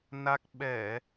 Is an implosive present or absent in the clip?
present